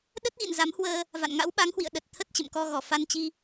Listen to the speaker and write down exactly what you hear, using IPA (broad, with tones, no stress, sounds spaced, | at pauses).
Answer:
ɗ ə˦˥ t̚ ɣ ḭ˧˨ n z a˨˦ m h w əː˧ | v a̰˧˨ n ŋ a̰˧˥ w ɓ a˨˦ ŋ h w ḭ˧˨ ə̯ ɗ ə˨˩ t̚ t̪ʰ ə˦˥ t̚ t͡ɕ ə̰˧˨ m k ɔ˧ ɣ ɔ˧˩ f a˧ n t͡ɕ i˧